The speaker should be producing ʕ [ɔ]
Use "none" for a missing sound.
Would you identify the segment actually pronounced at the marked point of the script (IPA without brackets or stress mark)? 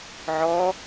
ɔ